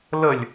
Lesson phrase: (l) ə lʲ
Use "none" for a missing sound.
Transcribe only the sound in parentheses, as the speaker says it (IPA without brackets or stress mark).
l